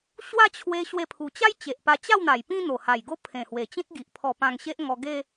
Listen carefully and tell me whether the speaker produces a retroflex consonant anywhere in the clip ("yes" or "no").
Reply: no